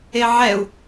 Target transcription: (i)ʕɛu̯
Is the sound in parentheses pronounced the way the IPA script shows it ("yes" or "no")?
no